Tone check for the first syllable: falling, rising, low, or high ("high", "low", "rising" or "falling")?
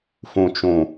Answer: high